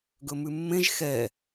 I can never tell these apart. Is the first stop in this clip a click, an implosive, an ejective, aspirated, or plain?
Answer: plain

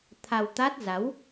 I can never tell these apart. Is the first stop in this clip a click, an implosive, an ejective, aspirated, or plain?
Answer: aspirated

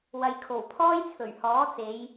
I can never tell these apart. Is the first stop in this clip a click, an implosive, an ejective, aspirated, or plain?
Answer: aspirated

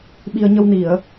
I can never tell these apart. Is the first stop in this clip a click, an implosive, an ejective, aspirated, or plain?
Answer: implosive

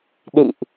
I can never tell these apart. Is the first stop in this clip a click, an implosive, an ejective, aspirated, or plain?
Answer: implosive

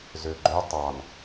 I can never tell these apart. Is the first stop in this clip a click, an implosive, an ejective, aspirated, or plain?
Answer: click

